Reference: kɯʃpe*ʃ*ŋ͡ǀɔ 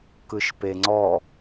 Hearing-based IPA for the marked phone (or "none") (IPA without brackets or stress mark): none